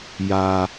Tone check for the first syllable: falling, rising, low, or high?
low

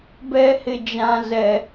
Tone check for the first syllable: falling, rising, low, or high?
high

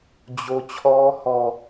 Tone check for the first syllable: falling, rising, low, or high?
high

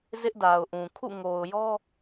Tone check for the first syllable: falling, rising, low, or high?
high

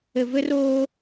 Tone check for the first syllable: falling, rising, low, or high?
low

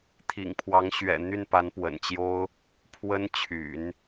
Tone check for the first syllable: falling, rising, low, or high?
low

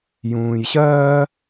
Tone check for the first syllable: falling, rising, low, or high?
low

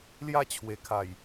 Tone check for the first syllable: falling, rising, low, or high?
high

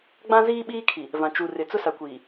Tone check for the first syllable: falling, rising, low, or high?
high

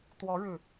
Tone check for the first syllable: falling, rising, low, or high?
rising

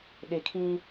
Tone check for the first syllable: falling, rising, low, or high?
low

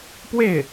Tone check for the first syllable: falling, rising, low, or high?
falling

